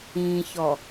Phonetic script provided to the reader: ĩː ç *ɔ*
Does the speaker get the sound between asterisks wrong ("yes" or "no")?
no